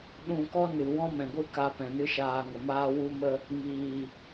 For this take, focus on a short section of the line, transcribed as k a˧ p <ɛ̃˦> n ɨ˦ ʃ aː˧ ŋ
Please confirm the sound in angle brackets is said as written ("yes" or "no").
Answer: no